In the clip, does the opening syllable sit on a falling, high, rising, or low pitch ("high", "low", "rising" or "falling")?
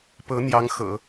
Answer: rising